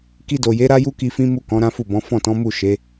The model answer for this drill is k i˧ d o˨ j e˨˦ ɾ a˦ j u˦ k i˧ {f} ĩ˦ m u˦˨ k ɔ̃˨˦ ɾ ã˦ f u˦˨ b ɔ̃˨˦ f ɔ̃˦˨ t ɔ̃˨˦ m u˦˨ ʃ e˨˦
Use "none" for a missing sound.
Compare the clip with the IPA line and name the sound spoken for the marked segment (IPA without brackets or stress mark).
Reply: f